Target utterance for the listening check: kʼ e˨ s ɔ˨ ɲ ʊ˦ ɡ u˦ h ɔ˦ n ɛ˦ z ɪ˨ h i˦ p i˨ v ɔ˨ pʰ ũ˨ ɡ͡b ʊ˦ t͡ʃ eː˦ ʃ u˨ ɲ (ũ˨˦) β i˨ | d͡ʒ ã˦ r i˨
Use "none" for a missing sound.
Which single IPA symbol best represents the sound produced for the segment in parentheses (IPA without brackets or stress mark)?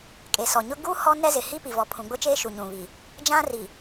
ũ˨